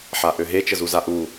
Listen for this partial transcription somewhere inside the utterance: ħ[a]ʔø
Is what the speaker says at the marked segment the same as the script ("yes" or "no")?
yes